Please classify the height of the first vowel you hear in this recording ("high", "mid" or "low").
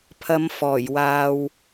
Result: low